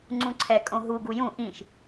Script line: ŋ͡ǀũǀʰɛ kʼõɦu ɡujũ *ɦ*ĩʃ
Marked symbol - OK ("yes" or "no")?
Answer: no